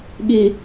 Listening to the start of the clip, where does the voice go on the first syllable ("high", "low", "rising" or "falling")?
low